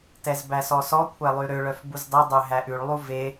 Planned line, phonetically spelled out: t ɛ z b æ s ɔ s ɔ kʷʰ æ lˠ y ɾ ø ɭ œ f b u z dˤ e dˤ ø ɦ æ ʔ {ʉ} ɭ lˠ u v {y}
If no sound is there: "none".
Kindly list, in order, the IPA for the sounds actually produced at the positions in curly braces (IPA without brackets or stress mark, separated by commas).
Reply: ʉ, e